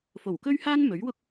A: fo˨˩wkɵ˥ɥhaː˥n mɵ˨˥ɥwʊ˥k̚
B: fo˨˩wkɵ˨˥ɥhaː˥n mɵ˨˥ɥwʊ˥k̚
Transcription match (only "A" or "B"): A